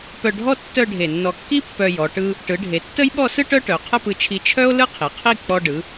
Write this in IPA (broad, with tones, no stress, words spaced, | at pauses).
pœ˧ɖʱɔ˥ tːœ˥˧ɖʱe˧˩ nːɔ˧˩kːi˥ pːœ˧jɔ˩˧ ʈɯ˧ | ʈɯ˩˧ɖʱe˩˧ tːə˥j ɓɔ˥˧sɯ˥ ʈœ˥ʈœ˩˧ qʰə˥˧pɯ˧t͡ʃʰi˧ t͡ʃʰœ˥o̯ lɯ˥qʰi˩˧qʰi˥˧ k͡pɔ˧ ɖɯ˩˧